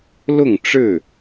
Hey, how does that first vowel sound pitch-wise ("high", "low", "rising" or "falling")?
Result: falling